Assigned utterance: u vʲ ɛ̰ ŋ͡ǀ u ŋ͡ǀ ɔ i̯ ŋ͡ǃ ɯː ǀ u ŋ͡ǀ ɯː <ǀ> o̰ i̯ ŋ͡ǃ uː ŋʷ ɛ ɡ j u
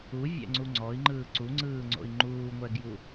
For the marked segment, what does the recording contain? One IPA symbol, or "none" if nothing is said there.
ŋ͡ǀ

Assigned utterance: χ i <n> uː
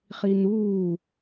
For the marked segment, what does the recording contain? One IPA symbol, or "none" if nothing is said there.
n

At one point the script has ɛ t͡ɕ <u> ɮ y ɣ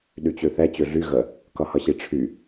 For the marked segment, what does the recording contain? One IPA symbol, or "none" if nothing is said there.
ø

